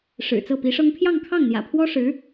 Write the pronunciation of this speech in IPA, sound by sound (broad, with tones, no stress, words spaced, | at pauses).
ʂɻ̩˨˩t͡sɤ˥˩pi˧˥ʂɤ˥ŋ pʰjɑ˥˧ŋkʰɑ˥˩ŋn̪jä̰˨˩pʰwɔ˥ ʂɻ̩˧˥